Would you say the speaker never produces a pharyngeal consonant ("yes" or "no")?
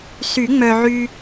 no